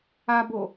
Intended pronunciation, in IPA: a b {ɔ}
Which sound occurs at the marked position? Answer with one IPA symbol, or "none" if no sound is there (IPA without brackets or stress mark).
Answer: o